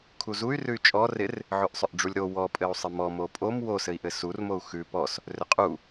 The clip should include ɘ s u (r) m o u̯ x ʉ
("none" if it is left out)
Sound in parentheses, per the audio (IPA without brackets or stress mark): r